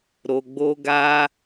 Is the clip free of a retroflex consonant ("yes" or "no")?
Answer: yes